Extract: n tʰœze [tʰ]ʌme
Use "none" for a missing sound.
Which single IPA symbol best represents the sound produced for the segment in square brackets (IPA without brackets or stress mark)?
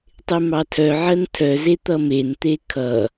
t̪